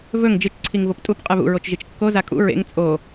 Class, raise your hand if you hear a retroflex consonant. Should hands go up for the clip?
no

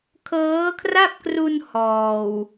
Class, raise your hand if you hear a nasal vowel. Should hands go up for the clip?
no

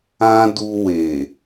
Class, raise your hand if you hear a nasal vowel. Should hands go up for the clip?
yes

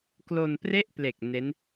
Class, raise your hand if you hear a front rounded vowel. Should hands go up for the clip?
no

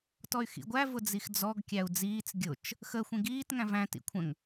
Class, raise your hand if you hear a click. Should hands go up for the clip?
no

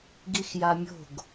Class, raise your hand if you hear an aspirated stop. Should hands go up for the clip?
no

